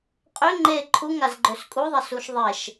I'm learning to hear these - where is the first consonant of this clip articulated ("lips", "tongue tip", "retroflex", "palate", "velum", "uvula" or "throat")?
uvula